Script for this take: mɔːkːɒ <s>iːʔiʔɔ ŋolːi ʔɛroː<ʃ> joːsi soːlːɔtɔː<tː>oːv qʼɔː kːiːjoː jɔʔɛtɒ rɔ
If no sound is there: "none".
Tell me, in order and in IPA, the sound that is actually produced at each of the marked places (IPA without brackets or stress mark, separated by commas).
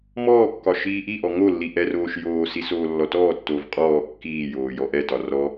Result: ʃ, ʃ, tː